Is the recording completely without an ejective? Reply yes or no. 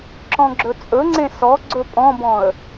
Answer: no